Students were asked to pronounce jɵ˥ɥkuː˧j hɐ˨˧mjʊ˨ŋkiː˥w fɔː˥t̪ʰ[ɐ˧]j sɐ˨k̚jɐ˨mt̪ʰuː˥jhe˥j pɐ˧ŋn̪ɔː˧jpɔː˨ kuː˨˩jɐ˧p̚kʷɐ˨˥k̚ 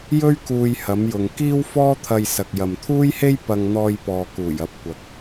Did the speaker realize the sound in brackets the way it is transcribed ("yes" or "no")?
yes